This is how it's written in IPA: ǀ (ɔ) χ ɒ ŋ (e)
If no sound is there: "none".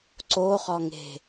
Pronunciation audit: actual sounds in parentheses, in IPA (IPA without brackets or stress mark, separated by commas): o, e̤